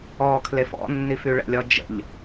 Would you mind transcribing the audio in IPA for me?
ɔkʰlef ɔ̰nːif yɭə̰lʲɔ d͡ʒə̰ʎ

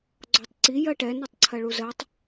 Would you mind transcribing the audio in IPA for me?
ɡ͡ǀɔtˤǀi jɜʈɛ nɔtˤǀʰɜɭuzɜtˤ

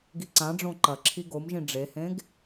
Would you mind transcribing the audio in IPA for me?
ɡiǀãɖ͡ʐõ ǃɐǁʰi ɡomʒĩ ɖ͡ʐehẽɡ

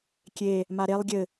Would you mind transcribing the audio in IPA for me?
kʲe | maɾelˠ ɡʲɘ

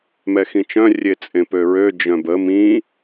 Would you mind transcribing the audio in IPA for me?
mɛxĩt͡ʃœ̃ rʲet͡sʼẽpøɹø d͡ʒœ̃bə mĩ

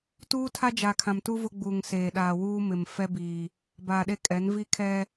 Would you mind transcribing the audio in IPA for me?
tuː˦tʰa˦ d͡ʒa˨kʰã˨mtu˦ vʊ˦ɡ͡buː˨ŋ seː˨ɗaː˨wuː˦mɪ˨m fɛ˦biː˨ | baː˨ɗe˦kʼɛ˨˦n vi˦kʰɛ˦

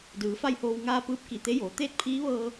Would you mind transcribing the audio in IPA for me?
dɯː˩˧fa˥˨jhoː˧w ŋaː˧ pɯː˧˥p̚ki˧˩t̪e˧˥joː˩˧ t̪eː˥˨t̚pʰiː˧˥ʋɤː˧

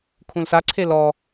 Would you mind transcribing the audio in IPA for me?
kʰũlsaǀʰe lɔ

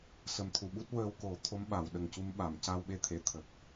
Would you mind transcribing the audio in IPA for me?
sə˨˩mt̪ʰu˨˩˨ɓu˦˥t̚wəː˧w ko˨˩˦t̪ʰo˧˥m ɓa˨˩˨wɗə˨˩ŋcu˧m ɓa˨˩˨mca˧wɓe˧t̪ʰe˨˩˨ t̪ʰə˨˩k̚

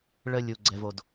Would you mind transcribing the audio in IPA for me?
ɭə˦ lʲu˧ɡ͡ǀɛ˧vo˧d

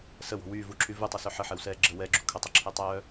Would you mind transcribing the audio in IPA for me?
səwɔ̤ wyːvuǁʰy vutˤəsœ ħəħɛwsɛː ɡ͡ǁə wɛɡ͡ǁṳ kʰətˤəǁʰɛtˤœː

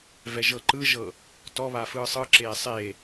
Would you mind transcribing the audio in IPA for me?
vɛʒɤǃɯʒɤ | tɔβa fɯːsˤɯǁeː sˤe

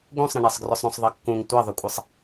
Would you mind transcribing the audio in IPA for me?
ɡũsˤɾə̃ɳɛsˤɡrʏsˤ ɾũsˤðˤʌkːũŋ tʷʌðˤʏkʷʼəsˤ

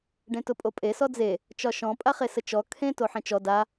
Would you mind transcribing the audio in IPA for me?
ɖẽtʊpʼopʼe sɔd͡ze | t͡ʃɒʃɔ̃ pʼaχesət͡ʃɔ kʰẽ toħẽt͡ʃɔ da

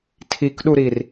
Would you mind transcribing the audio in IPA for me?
tʰikɗuɾir

